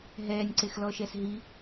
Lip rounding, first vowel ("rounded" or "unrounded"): unrounded